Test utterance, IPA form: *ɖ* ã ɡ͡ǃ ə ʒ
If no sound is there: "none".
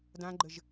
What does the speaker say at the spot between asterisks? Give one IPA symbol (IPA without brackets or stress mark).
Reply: d